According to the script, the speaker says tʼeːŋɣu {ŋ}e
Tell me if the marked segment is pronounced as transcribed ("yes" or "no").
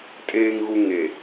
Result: yes